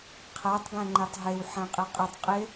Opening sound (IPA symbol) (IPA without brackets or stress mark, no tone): qʰ